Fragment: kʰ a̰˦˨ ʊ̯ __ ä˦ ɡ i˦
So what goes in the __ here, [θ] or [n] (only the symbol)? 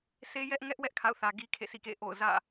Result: θ